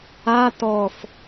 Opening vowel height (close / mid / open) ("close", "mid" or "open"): open